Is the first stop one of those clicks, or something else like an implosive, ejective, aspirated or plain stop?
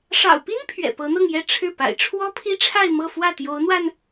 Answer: plain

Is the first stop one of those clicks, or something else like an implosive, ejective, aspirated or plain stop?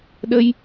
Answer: implosive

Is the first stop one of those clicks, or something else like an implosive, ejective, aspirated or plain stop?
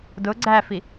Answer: plain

